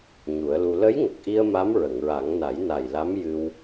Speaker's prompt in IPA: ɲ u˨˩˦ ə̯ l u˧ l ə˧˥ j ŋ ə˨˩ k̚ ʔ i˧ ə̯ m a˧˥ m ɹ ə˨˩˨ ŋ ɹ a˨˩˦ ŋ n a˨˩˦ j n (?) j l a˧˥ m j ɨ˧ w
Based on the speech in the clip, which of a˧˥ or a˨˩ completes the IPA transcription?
a˨˩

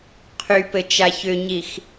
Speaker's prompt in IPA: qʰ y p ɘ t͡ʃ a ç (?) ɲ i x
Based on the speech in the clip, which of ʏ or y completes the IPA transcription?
ʏ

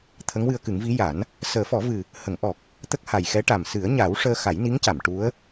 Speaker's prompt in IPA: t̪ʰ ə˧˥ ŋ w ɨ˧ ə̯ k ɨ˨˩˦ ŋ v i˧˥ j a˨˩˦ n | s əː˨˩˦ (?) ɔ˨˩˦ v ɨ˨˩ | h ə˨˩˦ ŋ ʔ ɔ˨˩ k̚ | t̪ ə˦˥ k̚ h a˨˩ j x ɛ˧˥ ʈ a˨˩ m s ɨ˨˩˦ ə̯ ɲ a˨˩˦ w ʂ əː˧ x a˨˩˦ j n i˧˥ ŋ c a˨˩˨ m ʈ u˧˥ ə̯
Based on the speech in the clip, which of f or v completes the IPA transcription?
f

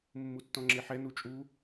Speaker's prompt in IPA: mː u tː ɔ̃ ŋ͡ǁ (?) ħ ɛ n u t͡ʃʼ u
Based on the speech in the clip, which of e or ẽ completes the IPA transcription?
e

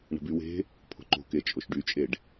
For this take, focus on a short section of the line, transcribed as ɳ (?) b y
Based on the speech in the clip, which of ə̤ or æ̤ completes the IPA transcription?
ə̤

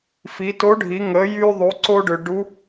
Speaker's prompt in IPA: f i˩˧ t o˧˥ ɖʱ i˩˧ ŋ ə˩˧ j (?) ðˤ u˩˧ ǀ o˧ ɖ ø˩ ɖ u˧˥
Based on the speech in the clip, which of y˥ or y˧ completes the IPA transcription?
y˧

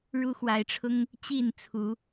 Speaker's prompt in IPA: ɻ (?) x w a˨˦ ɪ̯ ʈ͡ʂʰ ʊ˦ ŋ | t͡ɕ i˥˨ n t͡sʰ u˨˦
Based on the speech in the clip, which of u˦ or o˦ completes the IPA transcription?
u˦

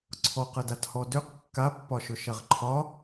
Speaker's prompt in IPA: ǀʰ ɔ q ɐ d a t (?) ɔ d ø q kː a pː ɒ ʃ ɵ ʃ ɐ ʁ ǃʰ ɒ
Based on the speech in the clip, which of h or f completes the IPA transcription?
h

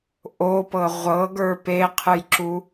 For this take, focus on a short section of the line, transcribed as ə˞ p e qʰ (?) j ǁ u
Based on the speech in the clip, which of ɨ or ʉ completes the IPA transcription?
ɨ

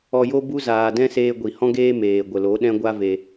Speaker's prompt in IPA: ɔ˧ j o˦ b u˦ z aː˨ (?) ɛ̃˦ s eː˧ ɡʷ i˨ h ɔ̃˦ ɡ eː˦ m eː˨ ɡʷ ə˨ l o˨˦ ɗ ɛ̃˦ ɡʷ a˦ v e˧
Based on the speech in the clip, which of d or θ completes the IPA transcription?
d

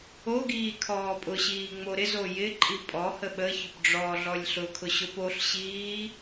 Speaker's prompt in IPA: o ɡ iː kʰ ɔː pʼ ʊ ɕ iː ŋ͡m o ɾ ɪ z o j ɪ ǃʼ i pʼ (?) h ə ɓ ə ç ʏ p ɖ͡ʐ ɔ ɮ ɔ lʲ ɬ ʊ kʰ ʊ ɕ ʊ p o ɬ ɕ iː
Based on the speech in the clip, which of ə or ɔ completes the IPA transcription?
ɔ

